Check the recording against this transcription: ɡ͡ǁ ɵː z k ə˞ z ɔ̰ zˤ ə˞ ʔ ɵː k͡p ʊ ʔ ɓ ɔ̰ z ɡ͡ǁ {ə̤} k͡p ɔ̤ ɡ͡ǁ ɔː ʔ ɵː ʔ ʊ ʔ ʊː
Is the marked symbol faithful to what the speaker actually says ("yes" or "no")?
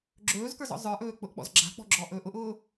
no